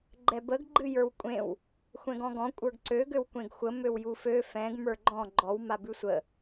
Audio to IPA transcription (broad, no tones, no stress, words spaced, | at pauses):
ɡ͡ǃɛbəɡ ɡ͡ǃɨjə˞wkʷʼẽw | xʷɛ̃ɡɔ̃ɡɔ̃ kʷʼə˞ɡǀø ɡøwkʷẽɡxʷə møwjufø fɛ̃ɡ mə˞ɡ͡ǃɔ̃ ɡ͡ǃɔw mabʉsʷə